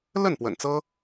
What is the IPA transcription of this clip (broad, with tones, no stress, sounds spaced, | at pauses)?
l ə˥˩ n p w ə̰˨˩ n t͡s ɤ˥